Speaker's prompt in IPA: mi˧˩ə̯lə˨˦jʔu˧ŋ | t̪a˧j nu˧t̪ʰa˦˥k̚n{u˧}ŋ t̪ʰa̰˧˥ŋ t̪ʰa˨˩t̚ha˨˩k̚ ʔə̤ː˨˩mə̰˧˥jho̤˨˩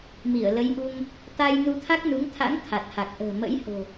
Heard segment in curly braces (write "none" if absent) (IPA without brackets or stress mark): u˨˦